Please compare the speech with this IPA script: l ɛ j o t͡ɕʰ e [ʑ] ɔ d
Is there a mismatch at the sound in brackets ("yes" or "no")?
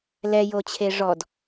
yes